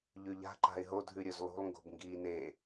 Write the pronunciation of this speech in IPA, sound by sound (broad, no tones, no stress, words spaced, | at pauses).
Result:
ʎʉʎa̤ ǃa̤ɪ̯ɦo dʱʉɾʲɵzlˠṳlˠ ŋɡo̤bŋɡiːne